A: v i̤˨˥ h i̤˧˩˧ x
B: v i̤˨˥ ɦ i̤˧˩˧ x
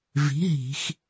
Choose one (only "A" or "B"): B